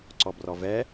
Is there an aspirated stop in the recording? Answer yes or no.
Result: no